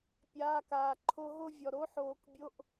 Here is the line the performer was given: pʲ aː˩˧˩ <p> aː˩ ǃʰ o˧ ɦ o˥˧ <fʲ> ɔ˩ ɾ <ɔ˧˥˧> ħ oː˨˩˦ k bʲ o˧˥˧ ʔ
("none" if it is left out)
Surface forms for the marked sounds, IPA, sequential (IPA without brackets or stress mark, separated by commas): k, vʲ, o˧˥˧